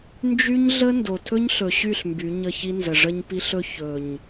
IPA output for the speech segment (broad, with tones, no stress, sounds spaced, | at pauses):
n d͡ʒ y˦ ɲ ɮ ə˦ n d o˨ tʰ ɵ˦ ɲ ɬ ɵ˨ ɕ y˦˨ ɬ m b y˨˦ ɲ ə˦˨ ç i˦ n z ə˨ ʐ ə˦ ɲ p i˦ ɬ ɵ˦ ç ɵ˨ ɲ